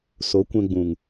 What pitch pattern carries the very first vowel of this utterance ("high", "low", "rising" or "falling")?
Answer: rising